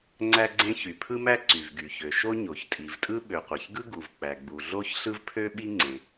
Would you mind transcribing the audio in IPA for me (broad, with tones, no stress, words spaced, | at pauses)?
ŋ͡ǀæ˥ɡ͡ǀẽ˥ çy˩pʰɯ˥mæ˥ ǀy˩vɡy˩çø˩ ʃo˥ ɲo˩çtʼi˩vtʼɯ˥ ɓø˩qʷæ˩çɡɯ˥ ɡu˩v k͡pæ˩ɡ͡bu˩ ɮo˥çɬɯ˥vpʰø˥ɓi˥ ŋ͡ǀẽ˩